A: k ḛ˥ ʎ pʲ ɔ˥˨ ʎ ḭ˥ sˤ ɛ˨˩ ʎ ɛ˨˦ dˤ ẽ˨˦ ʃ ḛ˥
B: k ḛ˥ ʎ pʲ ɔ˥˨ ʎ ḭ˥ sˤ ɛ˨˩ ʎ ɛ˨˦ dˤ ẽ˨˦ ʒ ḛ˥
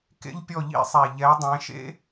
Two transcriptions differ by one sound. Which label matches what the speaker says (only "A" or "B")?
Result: A